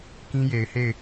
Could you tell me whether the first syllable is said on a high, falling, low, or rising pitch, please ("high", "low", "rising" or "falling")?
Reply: high